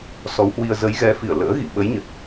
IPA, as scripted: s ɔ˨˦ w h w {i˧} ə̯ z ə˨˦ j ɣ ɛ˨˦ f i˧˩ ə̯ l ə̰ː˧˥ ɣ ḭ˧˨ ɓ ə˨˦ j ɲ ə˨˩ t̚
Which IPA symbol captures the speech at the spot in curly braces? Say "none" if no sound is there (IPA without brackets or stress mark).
i˧